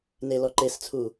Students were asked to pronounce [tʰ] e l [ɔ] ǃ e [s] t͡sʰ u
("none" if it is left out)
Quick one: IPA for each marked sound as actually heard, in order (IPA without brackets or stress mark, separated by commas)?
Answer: n, ɔ, s